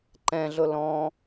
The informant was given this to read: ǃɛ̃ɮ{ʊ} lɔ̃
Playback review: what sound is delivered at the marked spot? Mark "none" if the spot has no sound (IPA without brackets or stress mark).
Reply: ʊ